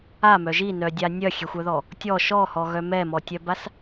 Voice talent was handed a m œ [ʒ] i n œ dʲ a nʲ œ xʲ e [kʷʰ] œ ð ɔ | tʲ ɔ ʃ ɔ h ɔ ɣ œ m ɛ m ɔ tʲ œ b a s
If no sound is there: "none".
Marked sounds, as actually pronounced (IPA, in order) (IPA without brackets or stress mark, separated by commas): ʒ, xʷ